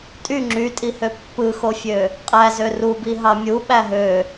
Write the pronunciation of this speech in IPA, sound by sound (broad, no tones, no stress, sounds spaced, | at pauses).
tʼ y ŋ͡ǁ y tʼ i h ø pː ɯ x o fʲ ø | qʼ æ z ø r u b i ɦ ɑ mʲ u ɓ æ ɦ ø